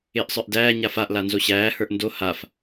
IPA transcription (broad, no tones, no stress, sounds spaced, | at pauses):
ɪː ʔ sˤ ə˞ ʔ d æː ɲ a f a ʔ l a n z o ɕ æː h ə˞ ʔ n d o h a f